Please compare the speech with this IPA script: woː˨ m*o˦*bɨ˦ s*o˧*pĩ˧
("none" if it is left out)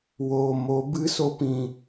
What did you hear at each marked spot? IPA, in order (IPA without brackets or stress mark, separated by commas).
o˨˦, o˦